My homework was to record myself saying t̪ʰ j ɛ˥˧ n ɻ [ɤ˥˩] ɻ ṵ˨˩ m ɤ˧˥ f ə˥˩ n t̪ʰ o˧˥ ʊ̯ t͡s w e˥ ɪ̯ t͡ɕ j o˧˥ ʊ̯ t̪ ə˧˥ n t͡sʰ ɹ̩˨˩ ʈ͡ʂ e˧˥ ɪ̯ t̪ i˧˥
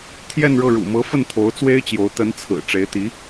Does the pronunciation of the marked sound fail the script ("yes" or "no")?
no